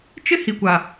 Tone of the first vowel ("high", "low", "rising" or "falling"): high